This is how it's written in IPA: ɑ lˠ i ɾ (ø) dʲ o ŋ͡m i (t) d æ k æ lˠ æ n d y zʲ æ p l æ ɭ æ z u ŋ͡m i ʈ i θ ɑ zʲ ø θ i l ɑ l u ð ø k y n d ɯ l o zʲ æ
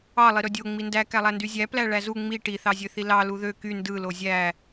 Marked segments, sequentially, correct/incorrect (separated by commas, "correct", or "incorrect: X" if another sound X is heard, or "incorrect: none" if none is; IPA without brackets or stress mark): correct, incorrect: n